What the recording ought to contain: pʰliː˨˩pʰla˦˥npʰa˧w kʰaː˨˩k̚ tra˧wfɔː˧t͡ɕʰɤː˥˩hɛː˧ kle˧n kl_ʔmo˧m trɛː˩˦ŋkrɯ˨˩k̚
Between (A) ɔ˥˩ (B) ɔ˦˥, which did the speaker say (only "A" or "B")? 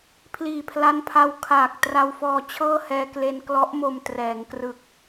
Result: B